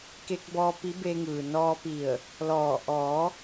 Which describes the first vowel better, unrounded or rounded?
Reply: unrounded